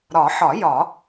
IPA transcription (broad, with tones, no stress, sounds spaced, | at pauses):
ɾ ɒ˨˩˦ ħ ɒ˨˩˦ j ɒ˨˩˦